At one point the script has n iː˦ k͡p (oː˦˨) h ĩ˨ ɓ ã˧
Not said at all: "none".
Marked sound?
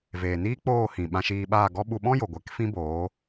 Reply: oː˦˨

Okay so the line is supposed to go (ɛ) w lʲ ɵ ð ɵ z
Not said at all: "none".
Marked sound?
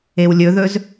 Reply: e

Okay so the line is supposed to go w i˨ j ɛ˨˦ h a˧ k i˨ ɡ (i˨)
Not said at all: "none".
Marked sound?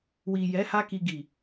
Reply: i˨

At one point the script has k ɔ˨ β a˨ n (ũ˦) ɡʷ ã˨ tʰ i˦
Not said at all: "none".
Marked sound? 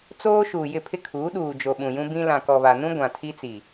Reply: ũ˦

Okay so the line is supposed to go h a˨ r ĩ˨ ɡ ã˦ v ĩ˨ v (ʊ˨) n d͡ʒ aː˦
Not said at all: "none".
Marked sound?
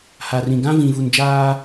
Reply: u˨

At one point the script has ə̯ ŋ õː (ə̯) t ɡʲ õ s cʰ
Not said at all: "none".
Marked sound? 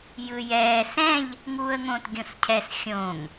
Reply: none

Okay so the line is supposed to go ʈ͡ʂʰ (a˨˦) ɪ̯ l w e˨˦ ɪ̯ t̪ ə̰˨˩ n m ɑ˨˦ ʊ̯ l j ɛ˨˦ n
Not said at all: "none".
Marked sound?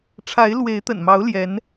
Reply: a˨˦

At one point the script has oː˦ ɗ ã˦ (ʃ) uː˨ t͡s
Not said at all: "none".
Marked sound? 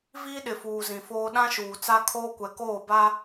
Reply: ʃ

